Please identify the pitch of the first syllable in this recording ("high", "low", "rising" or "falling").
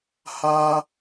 high